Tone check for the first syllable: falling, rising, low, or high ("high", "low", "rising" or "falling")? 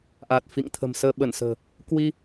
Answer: low